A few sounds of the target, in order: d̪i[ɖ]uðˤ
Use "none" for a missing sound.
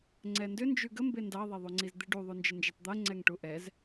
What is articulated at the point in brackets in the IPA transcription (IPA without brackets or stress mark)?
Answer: ɖ